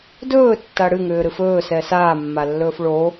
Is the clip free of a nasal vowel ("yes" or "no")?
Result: yes